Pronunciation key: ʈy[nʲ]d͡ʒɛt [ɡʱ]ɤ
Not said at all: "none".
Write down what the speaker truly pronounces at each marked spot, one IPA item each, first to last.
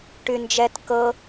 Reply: n, k

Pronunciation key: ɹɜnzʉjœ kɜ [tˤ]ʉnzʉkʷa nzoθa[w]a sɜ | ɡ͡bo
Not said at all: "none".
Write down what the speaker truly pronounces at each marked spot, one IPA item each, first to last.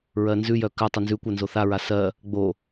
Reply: tˤ, ɹ

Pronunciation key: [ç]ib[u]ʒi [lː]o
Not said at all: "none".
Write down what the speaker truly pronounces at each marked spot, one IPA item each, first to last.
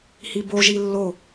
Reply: h, o, lː

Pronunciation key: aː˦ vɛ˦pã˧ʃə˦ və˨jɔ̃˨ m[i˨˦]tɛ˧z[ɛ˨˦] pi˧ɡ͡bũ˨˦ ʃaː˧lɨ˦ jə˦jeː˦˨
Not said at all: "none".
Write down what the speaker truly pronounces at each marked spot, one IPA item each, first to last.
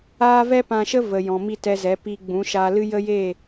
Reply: i˦˨, ɛ˨˦

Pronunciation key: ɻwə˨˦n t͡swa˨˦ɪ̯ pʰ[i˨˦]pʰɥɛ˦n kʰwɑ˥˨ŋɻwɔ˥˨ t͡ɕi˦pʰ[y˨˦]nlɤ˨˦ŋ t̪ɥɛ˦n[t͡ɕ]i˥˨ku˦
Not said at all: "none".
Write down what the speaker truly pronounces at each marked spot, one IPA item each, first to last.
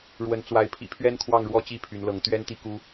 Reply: ḭ˨˩, y˨˦, t̪

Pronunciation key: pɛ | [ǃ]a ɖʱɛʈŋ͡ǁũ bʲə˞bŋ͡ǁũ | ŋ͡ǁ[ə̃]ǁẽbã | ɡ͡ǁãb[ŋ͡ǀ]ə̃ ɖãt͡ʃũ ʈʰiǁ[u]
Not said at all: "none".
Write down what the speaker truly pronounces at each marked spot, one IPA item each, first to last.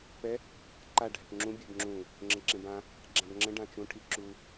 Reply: ǃ, ə̃, ŋ͡ǁ, u

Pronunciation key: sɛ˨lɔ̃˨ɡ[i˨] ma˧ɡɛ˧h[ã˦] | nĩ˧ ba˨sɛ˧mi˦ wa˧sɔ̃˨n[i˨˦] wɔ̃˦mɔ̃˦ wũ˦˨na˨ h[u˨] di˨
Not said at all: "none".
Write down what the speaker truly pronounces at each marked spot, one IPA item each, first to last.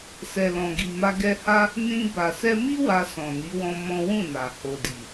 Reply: i˨, a˦, i˨˦, o˨

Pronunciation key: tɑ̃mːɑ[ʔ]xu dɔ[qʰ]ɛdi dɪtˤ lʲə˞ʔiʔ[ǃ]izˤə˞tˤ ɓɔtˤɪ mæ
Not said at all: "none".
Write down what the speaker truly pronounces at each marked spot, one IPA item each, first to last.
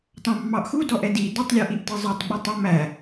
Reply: ʔ, ʔ, t

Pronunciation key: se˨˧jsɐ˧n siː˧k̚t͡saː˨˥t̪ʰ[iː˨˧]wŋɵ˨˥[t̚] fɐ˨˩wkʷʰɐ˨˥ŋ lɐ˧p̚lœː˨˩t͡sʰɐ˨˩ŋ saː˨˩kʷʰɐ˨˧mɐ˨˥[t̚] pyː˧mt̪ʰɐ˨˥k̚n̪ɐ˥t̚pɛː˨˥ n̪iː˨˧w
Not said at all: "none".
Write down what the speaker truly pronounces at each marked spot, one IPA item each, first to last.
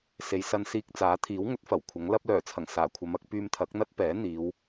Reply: iː˨˥, t̚, k̚

